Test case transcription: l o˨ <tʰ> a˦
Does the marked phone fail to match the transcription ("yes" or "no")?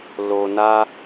yes